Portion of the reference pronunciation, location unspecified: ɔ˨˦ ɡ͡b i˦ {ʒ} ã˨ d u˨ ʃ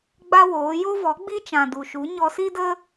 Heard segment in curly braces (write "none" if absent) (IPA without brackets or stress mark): t͡ʃ